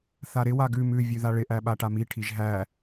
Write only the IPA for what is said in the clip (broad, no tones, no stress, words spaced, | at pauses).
θaɾɪ waɡʉ mʉ vʲʉðaɭɪ ʔæɓaʈami ʈʰiʒɦæ